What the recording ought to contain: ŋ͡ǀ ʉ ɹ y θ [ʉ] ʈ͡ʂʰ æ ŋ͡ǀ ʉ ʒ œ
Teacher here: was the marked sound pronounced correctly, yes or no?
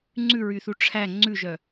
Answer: no